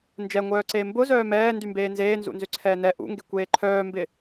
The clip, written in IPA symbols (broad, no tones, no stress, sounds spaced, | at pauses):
n d͡ʒ ɛ ŋʷ œː ǀ eː m b ʊ z œː m ɛː n d y m b eː n z eː n z ṵ n z ʏ ǀʰ ɛː n ɛ ʔ ṵ ŋ ɡ e kʷ eː ǃʰ œː m b ɪ